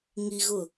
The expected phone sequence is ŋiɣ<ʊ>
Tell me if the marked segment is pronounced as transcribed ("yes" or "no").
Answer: yes